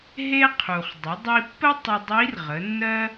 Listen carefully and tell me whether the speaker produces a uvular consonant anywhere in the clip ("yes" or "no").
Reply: yes